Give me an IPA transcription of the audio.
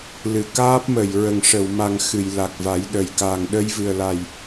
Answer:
l ɨ˨˩˨ k aː˦˥ p̚ m ə˨˩˨ j ɹ ə˨˩ ŋ ʂ ə˨˩˨ w m a˨˩ ŋ x ɨ˨˩˨ j l a˨˩ k̚ v a˨˩˦ j ɗ ə˨˩ j k a˨˩ ŋ ɗ ə˧ j v ɨ˨˩ ə̯ l a˨˩ j

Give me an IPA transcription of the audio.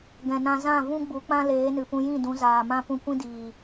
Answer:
ɡ ɛ̃˨ n ã˧ z ã˦˨ v ũ˦ ɡ͡b u˨˦ k͡p ã˦ l eː˨˦ n ɨ˨ p ũ˧ j ĩ˦˨ d ũ˨˦ z aː˨ m ã˦ p ũ˧ kʷ ĩ˦ d iː˨

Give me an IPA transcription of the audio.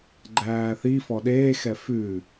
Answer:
ɡ͡ǃ æː θ i f ɔ ɗ eː x ɛ f ʉ

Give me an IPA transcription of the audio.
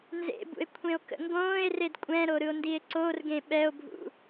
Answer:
n z ḛ b ṵ e̯ kʷʰ ẽ o̯ k ə̰ ŋ ɡ õː e̯ r e d kʷʼ ɛ̃ ɾ o ɾ ɯ o̯ n d i e̯ ǀ o r ɡ ẽ ɓ ɛ o̯ bʱ ṵ

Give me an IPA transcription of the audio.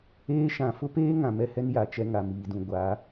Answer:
eː˦ ʃ ã˨ f ʊ˦ p eː˦ ŋ ã˨ m ɛ˦ h ɛ˦ n j a˨ t͡ʃ ɛ˦ ŋ a˨ m iː˨ d ũ˨ ɡʷ a˨˦

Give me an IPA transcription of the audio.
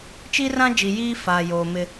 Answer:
t͡ʃ i˦ r ã˦ d͡ʒ i˨ j iː˦ f aː˨ j oː˨ m ɪ˦

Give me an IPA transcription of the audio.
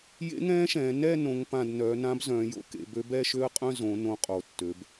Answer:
j ḛ˧˥ ŋ ɛ̃ː˧˥ ʃ ɛ̃ː˩˧ n ɛ˥˧ n õ˧˥ ŋ p ã˥˧ d n œ˩˧ n ã˧˥ b z œ̃ː˩˧ j o̰˧˥ k ḛ˩˧ b ø˧˥ b ɛ˥˧ ʃ ø˥˧ ə̯ qʼ œ̃˥˧ z õ˩˧ n õ˧˥ qʼ o˩˧ tː ø˩˧ b

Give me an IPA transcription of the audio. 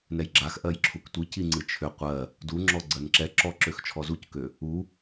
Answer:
n ɛ j ɡ͡ǁ a x ʔ ɜ j ǁʰ u k tʷ i c i ŋ͡ǀ ɨ t͡ʃʰ ʏ qʷ ɜ | d u ŋ͡ǁ ɔ ɡ͡ǀ ɜ n ǁ ɛ ǁ ɔ ǁ ø x t͡ʃʰ ɔ z u c k ø | u

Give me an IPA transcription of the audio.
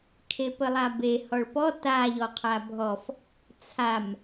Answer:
kʰ e p ə lˠ a b e h ɔ ɭ p ɔ t a ʎ ɔ qʰ a bʱ ɔ f | t͡sʰ a m

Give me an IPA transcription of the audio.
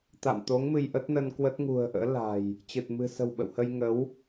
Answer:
t̪ a̰˧˨ m t̪ o˨˦ ŋ m ɨ˧ j ʔ ə˦˥ t̚ n ə˧ n k w ə˦˥ t̚ ŋ ṳ˨˩ ə̯ ʔ ə̰ː˧˥ l a̤˨˩ j | t͡ɕ ɨ˨˩ t̚ m ɨ̤˨˩ s ə̤˨˩ w ɓ ə̰˧˨ w h ə˧ j ŋ ə˨˦ w

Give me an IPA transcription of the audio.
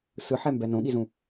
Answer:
s ɯ ħ ɛ m b ɛ n õ ɠ i z ũ

